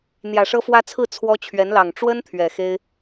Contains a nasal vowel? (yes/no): no